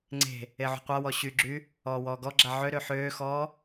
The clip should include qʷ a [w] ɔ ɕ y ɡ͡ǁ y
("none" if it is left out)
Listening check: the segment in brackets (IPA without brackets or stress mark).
w